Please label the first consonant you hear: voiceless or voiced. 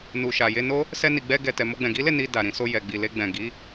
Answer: voiced